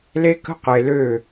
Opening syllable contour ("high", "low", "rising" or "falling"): high